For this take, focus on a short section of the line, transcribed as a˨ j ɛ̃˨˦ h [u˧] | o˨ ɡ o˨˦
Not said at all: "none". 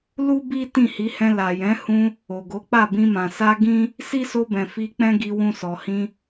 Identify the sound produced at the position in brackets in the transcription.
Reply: ũ˧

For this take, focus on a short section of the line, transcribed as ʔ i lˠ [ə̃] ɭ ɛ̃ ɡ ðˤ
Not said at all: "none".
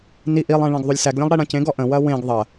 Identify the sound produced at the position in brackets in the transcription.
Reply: ɛ̃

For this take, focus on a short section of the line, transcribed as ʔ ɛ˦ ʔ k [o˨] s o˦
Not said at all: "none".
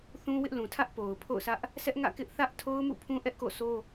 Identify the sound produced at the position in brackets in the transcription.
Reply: o̰˦˨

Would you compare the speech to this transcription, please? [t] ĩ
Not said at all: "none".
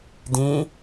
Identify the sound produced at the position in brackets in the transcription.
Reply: d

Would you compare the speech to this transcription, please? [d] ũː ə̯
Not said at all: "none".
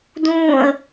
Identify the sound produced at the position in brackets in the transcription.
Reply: d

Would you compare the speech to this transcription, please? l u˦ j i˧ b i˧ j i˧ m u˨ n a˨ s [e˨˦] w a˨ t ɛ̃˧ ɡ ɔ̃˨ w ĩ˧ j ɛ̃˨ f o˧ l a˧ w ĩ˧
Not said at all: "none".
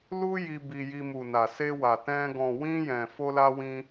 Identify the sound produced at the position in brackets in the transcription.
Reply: e˧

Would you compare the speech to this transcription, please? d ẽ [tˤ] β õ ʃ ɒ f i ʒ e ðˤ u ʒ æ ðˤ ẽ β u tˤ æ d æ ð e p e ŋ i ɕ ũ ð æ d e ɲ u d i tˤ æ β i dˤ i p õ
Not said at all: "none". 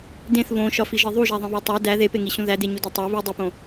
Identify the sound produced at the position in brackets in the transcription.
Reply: θ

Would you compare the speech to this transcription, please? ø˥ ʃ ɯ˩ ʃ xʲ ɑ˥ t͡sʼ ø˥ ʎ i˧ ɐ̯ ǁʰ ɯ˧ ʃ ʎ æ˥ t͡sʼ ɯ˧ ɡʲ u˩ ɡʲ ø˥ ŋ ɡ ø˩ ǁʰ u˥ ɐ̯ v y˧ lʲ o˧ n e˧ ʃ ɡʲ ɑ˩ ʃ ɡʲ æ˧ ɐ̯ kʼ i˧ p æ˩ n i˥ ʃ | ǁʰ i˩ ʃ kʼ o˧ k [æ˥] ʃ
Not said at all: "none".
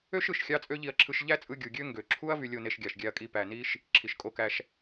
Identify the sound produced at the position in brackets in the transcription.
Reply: æ˧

